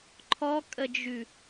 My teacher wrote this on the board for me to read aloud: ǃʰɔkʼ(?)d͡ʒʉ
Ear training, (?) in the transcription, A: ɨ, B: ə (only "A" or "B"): B